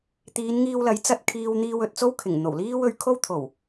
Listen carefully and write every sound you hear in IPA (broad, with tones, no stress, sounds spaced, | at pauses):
t̪ iː˨˧ n ŋ iː˧ w l ɐ˨˥ j t͡s ɐ˧ t̚ kʰ iː˧ w n̪ iː˧ w ɵ˨ t̚ t͡s o˥ w kʰ ɪ˨˩ ŋ n̪ o˨˩ w l iː˥ w ɵ˨˧ ɥ kʰ o˥ w t̪ʰ o˨˩ w